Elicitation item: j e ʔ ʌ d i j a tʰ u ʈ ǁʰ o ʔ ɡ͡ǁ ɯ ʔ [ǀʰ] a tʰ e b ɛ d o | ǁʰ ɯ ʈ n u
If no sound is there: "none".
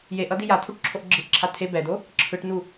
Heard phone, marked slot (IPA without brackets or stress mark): ǁʰ